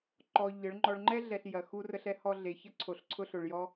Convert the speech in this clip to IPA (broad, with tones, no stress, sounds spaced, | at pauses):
ǃ ɔ˧ ʎ ə˨˦ ɭ ŋ͡ǃ ɔ˧ ɭ ŋ͡ǃ ɛ˦ ɮ ɛ˨ ɬ j ɐ˨ x u˧ r ə˨ ɬ ɛ˧ h ɔ˨ ɮ e˨ ç ə˦ ǀʰ o˨ ɬ ǀʰ ʊ˧ ɬ ʊ˨ ɭ j ɔ˧